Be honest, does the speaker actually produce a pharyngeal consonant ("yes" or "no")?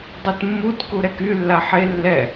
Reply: yes